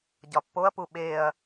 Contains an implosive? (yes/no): yes